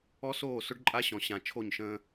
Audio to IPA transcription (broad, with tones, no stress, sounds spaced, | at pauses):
ɔ˦ s oː˦˨ s ʊ˦ ɖ ǃʼ a˦ ɕ ɔ̃˨ ɕ ã˨ t͡ʃʰ o˦˨ ɲ ʃ ə̃ː˦